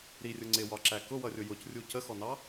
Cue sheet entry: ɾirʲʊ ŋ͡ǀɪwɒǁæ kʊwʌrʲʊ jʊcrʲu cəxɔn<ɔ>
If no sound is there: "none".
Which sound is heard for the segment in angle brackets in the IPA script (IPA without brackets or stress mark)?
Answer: ɑ